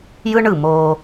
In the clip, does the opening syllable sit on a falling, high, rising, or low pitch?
high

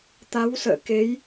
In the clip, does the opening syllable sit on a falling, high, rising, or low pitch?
rising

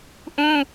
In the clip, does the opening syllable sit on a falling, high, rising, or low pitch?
high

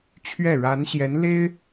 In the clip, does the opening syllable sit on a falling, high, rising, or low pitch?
falling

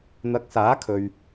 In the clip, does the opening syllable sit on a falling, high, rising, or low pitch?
rising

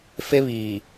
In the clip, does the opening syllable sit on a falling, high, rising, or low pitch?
high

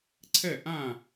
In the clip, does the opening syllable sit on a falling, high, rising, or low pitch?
falling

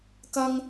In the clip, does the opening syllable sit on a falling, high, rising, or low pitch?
high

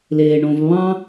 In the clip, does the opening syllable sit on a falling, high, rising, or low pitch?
low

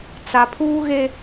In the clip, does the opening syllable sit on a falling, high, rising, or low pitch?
low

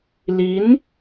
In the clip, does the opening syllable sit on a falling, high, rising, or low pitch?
rising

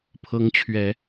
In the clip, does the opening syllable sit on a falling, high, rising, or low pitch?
rising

